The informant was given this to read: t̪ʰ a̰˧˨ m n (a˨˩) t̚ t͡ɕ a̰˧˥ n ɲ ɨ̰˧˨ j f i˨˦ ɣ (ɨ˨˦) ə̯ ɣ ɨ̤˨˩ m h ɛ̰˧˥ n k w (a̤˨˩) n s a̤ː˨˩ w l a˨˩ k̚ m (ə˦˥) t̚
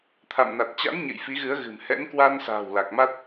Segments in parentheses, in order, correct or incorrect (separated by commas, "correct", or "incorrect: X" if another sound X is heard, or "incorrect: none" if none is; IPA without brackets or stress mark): correct, correct, incorrect: a˧, incorrect: a˦˥